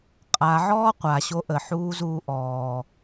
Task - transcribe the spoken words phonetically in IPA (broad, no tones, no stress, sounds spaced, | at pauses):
qʼ a ʕ ɔː qʷ a ɕ o ʔ ə ħ uː z uː ʔ ɔː